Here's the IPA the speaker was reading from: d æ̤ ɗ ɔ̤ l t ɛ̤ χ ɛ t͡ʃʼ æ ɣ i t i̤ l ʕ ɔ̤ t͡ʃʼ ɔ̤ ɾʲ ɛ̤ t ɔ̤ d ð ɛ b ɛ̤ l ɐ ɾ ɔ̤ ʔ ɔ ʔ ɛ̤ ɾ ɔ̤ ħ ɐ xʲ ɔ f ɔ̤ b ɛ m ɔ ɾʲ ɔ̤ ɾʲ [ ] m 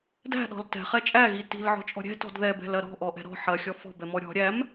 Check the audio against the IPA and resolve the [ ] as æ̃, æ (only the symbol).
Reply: æ